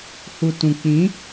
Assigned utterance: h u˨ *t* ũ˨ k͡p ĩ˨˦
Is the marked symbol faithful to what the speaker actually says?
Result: yes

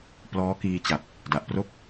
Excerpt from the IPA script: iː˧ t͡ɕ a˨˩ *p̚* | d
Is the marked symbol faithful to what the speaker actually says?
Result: yes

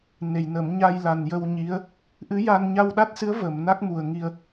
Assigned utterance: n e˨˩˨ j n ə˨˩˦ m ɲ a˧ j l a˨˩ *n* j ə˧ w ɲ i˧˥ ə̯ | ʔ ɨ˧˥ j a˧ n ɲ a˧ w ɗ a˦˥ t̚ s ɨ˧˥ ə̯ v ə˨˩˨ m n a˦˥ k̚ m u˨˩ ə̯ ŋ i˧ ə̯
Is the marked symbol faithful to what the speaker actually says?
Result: yes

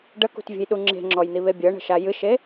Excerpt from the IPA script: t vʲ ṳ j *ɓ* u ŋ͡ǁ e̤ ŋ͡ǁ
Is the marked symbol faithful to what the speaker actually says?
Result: no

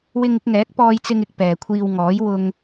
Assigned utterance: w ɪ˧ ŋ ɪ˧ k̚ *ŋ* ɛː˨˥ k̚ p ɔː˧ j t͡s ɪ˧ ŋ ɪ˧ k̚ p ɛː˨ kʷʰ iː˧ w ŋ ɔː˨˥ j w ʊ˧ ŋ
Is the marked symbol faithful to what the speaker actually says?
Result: yes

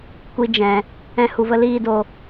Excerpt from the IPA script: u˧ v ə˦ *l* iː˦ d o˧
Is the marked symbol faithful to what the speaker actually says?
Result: yes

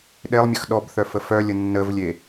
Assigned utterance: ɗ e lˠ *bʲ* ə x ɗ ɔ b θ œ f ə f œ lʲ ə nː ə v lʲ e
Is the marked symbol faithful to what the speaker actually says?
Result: no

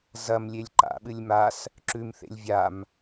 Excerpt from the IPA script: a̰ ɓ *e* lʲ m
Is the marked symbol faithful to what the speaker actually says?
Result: no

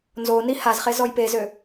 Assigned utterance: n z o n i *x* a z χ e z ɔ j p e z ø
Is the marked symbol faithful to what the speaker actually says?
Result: no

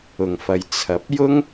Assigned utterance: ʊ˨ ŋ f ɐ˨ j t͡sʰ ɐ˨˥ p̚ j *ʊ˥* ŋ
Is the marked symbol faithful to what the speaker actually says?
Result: yes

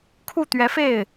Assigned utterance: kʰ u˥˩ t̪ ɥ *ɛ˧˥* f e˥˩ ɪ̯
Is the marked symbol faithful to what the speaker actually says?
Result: yes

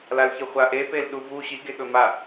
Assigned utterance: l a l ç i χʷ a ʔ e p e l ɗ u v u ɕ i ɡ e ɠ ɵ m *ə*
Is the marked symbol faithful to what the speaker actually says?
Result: no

